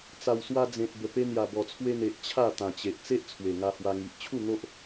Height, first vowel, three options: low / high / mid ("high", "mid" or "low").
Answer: low